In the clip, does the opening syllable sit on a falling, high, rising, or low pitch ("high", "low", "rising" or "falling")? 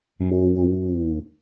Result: high